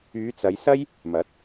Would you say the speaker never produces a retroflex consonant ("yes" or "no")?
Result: yes